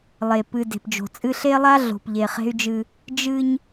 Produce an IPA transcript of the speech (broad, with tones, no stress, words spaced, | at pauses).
lˠe˨ pɨ˨ de̤˨pd͡ʒo̤˨ t͡sʼɨ˦ ɬe˦lˠa˦ ɮo̤˨pʎe˨χe̤˦y̯d͡ʒɨ˦ | d͡ʒɨ˦ɲ